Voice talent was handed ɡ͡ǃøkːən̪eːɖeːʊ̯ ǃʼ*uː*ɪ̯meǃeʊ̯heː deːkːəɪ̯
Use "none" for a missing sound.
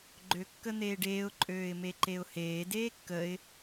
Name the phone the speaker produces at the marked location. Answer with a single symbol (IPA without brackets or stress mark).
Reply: øː